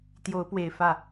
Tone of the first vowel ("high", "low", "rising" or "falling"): rising